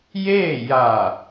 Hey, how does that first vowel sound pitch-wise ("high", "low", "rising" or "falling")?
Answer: falling